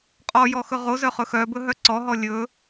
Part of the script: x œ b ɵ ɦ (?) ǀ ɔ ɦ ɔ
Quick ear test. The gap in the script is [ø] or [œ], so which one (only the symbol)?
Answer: œ